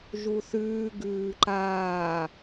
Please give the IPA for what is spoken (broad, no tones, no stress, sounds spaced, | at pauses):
ʒ u θ ʉː ɡ ʉː ǃ aː